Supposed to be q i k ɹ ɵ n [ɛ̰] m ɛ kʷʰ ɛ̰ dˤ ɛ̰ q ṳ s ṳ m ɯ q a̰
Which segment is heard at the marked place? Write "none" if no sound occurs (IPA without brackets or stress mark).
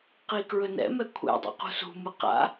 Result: ɛ̰